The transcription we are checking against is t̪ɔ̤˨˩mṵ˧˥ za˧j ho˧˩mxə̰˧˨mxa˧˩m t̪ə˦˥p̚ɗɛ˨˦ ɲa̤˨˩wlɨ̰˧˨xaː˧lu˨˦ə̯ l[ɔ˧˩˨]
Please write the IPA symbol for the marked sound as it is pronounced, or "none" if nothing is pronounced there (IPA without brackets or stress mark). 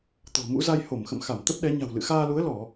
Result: ɔ˧˩˨